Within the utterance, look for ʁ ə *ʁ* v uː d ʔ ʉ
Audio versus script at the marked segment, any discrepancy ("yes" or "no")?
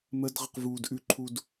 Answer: yes